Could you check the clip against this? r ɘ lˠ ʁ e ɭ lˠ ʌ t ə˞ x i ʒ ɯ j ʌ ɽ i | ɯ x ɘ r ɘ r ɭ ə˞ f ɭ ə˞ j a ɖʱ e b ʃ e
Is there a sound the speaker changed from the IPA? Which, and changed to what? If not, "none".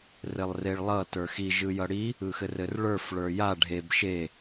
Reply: ʁ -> r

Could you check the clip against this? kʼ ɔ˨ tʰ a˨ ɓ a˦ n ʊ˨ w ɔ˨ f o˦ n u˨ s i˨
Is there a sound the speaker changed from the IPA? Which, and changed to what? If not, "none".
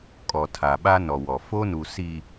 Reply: ʊ˨ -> ɔ˨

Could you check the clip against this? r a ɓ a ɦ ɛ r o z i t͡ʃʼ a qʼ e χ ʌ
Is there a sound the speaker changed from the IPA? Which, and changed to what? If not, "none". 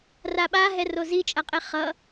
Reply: none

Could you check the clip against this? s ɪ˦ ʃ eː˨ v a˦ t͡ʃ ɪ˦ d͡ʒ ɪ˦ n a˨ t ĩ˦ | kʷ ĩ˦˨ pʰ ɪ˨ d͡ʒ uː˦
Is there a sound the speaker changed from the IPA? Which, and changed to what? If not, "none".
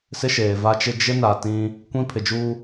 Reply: none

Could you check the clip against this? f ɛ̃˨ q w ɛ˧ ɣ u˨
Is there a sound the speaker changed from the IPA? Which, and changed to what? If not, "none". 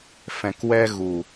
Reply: q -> k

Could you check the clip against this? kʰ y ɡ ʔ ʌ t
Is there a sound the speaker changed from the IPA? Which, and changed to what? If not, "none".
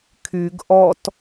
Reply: ʌ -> ɔ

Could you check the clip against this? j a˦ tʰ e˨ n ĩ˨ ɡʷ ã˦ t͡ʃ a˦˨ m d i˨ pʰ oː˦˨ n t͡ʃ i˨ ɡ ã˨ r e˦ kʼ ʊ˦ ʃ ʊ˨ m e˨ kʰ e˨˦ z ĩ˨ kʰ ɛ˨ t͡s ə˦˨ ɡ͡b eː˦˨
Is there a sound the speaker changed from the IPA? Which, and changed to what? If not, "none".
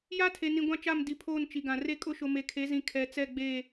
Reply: ə˦˨ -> ɛ˦˨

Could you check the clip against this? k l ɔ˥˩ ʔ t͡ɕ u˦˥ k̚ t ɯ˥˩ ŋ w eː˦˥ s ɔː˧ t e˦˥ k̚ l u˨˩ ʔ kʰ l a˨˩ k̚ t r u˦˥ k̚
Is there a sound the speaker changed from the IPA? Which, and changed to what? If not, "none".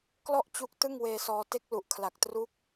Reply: eː˦˥ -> eː˧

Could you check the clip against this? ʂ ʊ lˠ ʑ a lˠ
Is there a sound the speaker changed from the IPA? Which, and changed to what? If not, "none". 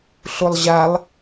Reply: ʂ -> ɬ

